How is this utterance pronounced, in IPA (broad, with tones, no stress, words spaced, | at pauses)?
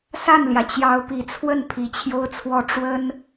sa˥˩nljä˩ t͡ɕjɑ˧˥ʊ̯pi˨˩t͡sʰwə˥˩n pʰi˧˥t͡ɕʰjo˥ʊ̯t͡sʰwɔ˥˩ ʈ͡ʂwə˥n